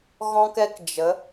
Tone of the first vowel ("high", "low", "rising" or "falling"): high